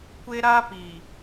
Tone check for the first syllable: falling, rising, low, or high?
high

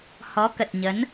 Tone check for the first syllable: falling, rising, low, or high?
rising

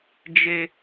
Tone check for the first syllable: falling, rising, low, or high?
high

